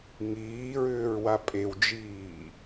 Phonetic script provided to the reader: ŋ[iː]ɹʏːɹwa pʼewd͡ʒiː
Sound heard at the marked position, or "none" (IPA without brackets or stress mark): iː